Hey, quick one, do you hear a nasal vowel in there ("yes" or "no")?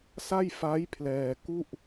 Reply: no